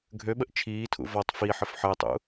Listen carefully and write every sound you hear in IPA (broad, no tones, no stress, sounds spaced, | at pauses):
ɡʱ ø ɓ ə ʔ t͡ʃʰ iː tʰ ṵ v ɔ tˤ f i ħ ə f ħ əː tˤ ṵ